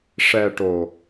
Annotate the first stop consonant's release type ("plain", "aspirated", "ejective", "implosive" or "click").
plain